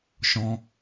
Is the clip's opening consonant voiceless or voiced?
voiceless